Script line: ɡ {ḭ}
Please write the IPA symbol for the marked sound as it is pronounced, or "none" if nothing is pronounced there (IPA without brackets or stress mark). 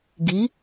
i